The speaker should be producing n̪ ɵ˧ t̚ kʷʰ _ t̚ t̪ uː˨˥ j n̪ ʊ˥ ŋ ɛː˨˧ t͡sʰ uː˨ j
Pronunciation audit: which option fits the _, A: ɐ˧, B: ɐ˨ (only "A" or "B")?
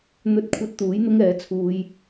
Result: A